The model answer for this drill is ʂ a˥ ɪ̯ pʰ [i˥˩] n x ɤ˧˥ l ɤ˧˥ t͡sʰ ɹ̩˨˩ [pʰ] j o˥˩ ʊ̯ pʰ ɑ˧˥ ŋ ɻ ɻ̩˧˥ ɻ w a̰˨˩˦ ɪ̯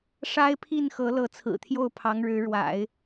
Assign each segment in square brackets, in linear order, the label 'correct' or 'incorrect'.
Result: correct, incorrect

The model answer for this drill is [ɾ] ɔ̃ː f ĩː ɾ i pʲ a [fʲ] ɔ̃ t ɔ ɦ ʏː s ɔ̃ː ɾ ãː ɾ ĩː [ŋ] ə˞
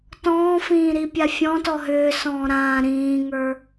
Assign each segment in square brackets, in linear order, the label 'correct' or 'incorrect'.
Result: incorrect, correct, correct

